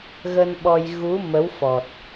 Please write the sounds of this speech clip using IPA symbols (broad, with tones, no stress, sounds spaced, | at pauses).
ɣ ə˧ n ɓ ɔ˧ j ɣ u˨˦ m ə˨˦ w f ɔ˨˩ t̚